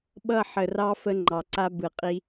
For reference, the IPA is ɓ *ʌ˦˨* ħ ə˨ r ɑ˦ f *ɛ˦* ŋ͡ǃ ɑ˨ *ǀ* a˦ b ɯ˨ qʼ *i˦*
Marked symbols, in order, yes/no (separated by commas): yes, no, yes, yes